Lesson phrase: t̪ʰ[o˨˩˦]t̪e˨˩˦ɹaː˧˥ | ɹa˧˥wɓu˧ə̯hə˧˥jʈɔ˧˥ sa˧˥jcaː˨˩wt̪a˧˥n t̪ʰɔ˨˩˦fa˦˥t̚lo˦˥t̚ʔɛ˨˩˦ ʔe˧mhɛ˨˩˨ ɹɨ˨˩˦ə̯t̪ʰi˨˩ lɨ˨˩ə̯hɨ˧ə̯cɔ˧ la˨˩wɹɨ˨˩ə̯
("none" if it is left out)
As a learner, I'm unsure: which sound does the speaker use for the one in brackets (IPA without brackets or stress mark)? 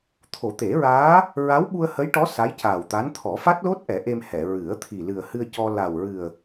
o˨˩˦